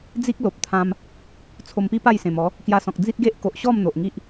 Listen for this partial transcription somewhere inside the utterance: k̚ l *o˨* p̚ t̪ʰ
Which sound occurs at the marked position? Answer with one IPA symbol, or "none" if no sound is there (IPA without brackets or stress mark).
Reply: o˨